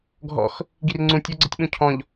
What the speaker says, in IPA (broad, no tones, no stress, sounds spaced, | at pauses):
ɡʱ ɔ̰ x | ɡ i r ŋ͡ǀ ũ tʲ o ɡ͡ǀ ə tʲ ɓ ũ cʰ ɔ̃ ʎ